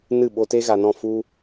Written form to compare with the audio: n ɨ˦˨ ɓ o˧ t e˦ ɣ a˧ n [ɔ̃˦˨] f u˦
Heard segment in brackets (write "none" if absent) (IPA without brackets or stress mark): ɔ̃˦˨